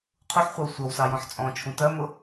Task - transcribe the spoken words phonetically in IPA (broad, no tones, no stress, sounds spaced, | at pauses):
qʰ u ħ χʷ ɑ w sʷ ʌ w s ɑ j ɔ̃ ħ t͡sʼ ɔ̃ t͡ʃʰ ũ t ɜ m ʊ